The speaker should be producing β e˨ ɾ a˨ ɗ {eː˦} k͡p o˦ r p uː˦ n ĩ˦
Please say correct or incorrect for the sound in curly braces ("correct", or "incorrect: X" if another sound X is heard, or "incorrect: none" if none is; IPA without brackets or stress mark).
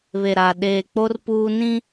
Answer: incorrect: eː˨